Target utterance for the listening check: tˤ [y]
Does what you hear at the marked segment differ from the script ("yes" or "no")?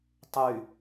no